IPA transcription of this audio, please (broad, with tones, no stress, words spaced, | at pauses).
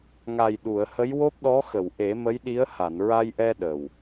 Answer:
ŋa˨˩jɗu˨˩˨ə̯hə˧˥j wo˦˥p̚ɗɔ˧˥xə˨˩˨w ʔe˨˩˦mə˧˥jɗi˧˥ə̯ ha˨˩˨n ɹa˧jʔɛ˧ ɗə˨˩w